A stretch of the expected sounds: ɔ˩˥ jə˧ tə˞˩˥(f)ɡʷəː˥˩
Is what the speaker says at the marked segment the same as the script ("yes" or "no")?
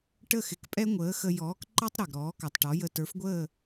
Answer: yes